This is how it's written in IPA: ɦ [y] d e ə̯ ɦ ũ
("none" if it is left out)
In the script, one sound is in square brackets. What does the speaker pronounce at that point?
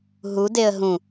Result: u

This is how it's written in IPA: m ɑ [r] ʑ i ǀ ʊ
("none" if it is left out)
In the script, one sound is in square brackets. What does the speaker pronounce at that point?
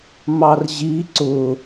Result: r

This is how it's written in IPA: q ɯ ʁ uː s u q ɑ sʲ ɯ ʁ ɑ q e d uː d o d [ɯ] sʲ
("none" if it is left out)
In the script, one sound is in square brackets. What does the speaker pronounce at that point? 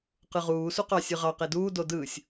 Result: ɯː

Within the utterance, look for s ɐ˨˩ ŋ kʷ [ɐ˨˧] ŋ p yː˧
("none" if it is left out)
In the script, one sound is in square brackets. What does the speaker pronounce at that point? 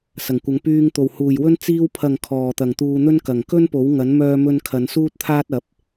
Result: ɐ˨˧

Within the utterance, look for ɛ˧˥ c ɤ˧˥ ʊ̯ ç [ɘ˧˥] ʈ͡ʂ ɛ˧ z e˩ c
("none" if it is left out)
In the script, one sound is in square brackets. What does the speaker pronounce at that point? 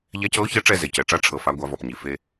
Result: e˧˥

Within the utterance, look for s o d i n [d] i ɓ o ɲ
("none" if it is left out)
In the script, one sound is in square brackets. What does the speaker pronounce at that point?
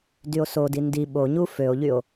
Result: d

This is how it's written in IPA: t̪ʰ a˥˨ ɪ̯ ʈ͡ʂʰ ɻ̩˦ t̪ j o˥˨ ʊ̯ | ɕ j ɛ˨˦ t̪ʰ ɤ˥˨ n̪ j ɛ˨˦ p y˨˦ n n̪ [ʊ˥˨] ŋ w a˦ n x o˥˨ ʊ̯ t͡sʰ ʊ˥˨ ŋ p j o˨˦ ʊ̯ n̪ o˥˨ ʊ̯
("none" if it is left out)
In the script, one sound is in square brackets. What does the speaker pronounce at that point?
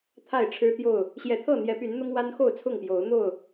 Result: ʊ˦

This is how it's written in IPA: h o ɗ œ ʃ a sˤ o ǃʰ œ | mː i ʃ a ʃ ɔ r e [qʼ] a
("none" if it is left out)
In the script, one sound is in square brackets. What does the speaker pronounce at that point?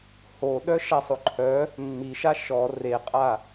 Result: qʼ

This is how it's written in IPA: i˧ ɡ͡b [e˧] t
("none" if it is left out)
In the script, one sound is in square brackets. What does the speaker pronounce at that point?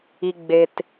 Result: e˧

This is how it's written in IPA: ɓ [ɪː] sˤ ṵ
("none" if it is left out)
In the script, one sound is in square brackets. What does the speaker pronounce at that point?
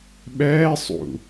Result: ɛː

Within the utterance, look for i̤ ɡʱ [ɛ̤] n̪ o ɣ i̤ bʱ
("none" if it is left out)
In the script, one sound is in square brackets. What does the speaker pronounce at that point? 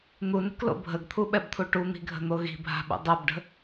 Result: ə̤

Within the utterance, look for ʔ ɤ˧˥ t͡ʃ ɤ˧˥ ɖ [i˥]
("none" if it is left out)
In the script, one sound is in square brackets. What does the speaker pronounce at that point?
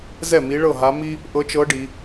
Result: i˩˧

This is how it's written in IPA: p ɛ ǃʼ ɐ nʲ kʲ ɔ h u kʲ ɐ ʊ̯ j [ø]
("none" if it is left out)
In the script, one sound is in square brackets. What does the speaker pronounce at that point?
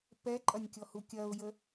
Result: ə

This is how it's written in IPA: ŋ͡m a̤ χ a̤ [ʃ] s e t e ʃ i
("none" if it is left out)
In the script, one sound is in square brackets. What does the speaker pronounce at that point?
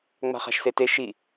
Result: ʃ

